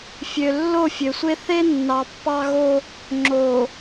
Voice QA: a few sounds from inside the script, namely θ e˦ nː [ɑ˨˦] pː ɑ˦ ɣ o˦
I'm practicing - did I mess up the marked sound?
yes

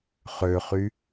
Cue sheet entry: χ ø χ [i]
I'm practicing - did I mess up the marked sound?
yes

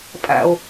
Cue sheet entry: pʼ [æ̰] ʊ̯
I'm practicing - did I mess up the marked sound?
no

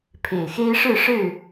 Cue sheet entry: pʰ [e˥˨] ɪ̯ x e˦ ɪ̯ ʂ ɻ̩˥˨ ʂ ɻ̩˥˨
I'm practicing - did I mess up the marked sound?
yes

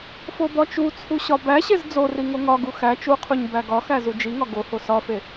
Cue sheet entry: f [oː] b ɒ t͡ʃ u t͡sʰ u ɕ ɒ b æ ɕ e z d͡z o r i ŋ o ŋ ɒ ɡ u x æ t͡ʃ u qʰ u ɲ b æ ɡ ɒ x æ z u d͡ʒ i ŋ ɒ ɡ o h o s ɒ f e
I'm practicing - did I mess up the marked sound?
yes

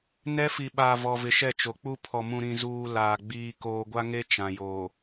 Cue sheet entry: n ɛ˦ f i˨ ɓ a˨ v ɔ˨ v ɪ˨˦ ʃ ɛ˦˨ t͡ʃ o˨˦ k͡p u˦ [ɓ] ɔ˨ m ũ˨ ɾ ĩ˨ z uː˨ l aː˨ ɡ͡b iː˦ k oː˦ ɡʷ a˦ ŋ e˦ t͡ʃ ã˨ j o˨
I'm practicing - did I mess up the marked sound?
yes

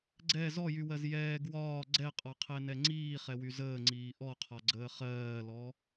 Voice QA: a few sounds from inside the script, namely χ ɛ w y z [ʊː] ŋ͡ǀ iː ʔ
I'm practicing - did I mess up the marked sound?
yes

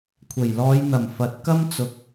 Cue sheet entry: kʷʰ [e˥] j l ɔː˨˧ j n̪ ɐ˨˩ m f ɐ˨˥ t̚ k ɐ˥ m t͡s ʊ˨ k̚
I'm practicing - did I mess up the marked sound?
yes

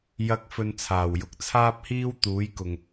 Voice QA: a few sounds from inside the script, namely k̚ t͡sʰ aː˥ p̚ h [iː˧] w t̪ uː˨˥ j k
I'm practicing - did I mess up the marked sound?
yes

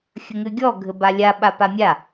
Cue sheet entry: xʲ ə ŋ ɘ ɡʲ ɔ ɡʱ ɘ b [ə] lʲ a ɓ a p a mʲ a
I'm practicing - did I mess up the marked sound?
yes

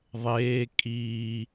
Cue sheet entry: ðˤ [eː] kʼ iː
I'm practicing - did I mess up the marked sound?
no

